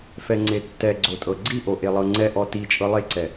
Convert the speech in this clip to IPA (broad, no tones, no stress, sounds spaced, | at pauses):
f ɛ ŋ͡ǀ e tː ɛ ɡ͡ǀ o tʼ ɤ ɡ͡ǀ i ʔ o ʔ e lˠ ɤ ŋ͡ǀ ɛ ʔ ɔ t i t͡ʃʼ ɤ lˠ e ǀ ɛ